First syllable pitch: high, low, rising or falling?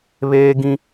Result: high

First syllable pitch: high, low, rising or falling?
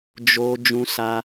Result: high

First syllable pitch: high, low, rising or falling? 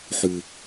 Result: low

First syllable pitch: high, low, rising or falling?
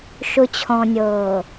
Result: low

